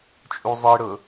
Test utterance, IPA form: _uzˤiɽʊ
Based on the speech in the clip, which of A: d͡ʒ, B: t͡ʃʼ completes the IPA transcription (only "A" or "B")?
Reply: B